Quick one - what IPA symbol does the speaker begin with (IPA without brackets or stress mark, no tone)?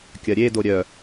kʲ